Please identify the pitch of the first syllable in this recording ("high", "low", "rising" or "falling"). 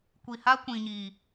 low